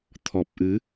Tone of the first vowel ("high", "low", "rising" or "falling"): low